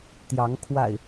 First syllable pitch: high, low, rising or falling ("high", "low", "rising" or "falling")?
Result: rising